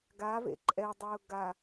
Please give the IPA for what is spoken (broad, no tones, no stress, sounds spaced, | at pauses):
ɡ a v ḛ ǃʼ ɛ dˤ ʊː ɡ a